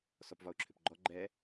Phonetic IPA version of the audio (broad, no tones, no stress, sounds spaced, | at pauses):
s ɔ p v ɒ ʊ̯ ǁʰ ʏ p ɡ͡ǃ ɔ ɡ͡ǃ ɛ